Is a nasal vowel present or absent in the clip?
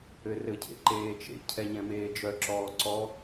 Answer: present